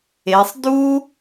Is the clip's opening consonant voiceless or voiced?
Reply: voiceless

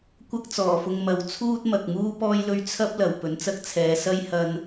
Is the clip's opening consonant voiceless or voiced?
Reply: voiceless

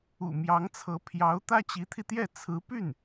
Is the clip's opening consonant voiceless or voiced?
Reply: voiced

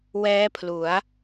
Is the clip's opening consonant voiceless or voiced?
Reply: voiced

